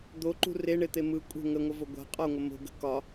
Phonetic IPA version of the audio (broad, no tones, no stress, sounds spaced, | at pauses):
d̪ o ǃ ṳ r e ɳ e t̪ e m ɯ kʷʼ ə̤ ŋ ə ŋʷ ə v o ɡʷ a̤ qʼ ɒ ŋʷ ə m o̤ ɡ ə̤ k ɒ